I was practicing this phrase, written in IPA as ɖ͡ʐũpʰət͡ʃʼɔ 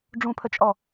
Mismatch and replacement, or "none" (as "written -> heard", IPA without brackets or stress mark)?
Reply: none